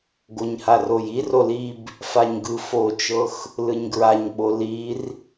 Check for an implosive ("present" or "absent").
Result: present